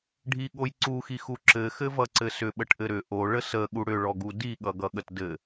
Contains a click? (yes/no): yes